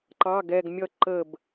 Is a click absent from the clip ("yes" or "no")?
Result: no